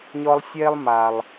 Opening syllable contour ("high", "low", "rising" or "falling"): high